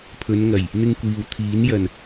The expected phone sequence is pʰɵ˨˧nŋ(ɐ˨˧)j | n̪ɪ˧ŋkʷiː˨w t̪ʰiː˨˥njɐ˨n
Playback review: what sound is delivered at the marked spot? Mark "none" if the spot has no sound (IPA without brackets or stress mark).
ɐ˨˩